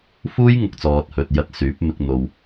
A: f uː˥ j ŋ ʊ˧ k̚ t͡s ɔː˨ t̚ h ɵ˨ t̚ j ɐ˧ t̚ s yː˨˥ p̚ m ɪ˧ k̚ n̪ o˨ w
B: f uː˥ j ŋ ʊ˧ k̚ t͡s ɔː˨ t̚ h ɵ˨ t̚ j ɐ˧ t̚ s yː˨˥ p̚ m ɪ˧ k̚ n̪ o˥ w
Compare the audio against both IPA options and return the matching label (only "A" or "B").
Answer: A